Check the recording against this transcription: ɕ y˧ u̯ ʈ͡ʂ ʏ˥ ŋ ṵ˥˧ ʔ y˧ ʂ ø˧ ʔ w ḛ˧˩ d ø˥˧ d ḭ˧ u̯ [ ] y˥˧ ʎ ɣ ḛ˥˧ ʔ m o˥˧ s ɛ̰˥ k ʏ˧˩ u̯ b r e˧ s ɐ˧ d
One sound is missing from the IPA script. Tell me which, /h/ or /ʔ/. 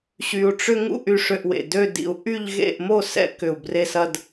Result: ʔ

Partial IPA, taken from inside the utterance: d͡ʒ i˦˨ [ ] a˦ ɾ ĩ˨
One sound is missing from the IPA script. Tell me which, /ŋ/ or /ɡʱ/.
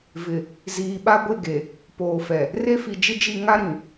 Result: ŋ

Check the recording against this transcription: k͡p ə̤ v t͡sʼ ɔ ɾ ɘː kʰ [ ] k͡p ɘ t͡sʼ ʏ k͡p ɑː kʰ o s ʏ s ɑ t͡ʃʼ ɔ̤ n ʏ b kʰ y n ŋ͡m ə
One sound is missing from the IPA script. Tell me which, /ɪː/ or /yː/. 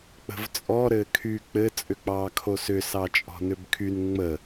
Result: yː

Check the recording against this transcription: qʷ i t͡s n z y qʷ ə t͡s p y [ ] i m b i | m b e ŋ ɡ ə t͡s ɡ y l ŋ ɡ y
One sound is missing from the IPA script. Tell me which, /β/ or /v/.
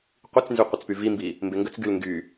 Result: v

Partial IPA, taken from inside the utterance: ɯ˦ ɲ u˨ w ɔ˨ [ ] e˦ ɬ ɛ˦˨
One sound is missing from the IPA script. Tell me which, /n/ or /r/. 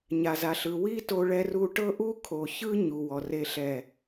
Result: r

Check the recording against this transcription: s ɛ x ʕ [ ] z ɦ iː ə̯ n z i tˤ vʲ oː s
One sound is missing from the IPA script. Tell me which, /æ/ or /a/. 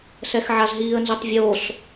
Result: a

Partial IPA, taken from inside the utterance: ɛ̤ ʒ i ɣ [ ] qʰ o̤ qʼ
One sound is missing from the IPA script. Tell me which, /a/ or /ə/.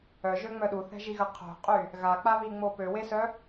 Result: ə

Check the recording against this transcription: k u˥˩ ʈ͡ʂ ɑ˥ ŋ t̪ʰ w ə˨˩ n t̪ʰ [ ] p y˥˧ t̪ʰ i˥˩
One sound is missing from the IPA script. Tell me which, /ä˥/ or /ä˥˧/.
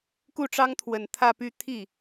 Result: ä˥˧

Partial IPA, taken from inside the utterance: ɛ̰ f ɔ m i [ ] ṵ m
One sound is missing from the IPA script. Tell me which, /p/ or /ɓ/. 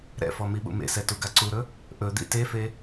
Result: ɓ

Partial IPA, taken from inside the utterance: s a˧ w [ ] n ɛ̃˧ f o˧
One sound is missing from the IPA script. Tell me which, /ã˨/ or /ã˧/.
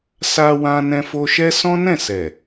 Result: ã˧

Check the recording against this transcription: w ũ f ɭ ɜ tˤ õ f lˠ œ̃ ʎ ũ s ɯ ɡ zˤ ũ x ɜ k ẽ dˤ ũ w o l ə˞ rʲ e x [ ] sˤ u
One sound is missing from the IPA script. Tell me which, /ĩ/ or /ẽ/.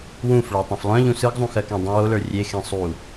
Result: ẽ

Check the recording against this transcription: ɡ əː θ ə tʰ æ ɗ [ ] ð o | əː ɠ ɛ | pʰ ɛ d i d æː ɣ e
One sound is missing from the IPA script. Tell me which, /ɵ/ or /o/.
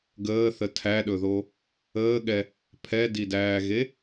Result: ɵ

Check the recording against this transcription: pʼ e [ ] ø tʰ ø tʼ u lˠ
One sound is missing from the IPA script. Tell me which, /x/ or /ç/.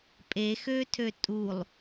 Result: x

